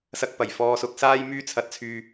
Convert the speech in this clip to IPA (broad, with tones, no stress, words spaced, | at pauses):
sɐ˧k̚pɐ˨˩j fɔː˧sʊ˧k̚saː˥jmyː˥ t͡sʰɐ˧t̚t͡sʰyː˧